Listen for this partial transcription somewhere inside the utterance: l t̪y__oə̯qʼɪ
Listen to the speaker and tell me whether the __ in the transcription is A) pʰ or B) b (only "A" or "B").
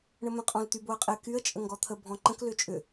B